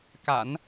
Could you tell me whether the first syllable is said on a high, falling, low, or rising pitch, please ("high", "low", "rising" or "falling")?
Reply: low